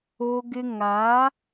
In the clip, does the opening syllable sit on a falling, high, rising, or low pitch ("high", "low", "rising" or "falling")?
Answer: high